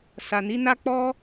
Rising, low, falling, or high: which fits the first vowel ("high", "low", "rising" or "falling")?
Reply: low